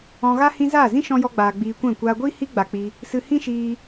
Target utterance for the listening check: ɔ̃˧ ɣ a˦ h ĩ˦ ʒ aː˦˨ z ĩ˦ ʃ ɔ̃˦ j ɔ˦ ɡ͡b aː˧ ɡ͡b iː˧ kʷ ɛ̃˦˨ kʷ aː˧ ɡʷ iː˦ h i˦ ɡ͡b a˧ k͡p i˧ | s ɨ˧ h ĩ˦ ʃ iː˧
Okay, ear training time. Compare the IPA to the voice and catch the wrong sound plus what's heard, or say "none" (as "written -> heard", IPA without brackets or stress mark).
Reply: ʒ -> z